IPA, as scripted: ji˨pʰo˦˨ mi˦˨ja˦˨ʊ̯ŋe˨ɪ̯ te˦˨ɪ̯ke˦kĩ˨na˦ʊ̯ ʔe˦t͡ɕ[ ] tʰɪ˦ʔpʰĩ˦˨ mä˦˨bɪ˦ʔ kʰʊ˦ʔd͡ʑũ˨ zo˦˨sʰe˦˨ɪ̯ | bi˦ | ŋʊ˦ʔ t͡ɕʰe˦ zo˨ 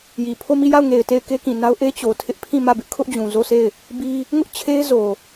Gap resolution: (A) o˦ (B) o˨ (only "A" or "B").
B